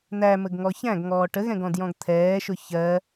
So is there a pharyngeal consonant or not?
no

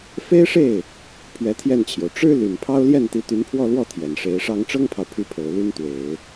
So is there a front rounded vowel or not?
yes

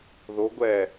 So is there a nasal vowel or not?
no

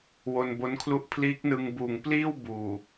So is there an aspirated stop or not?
yes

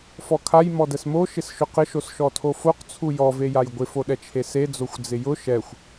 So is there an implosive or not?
yes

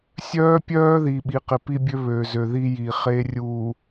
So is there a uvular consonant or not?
yes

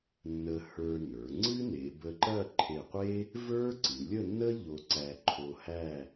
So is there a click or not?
yes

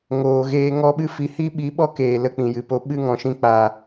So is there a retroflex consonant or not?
no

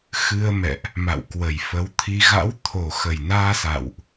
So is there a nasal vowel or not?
no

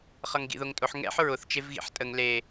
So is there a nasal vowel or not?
no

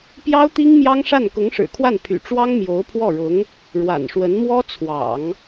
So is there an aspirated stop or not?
yes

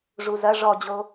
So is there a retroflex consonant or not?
yes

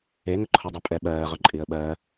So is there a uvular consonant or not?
yes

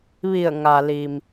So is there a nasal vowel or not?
no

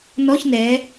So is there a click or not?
no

